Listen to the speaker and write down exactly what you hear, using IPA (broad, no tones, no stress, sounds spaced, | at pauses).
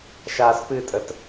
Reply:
ʃ aː s p ɨ tʼ ə t